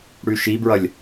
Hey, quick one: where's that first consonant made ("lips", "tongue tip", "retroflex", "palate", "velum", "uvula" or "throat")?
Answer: retroflex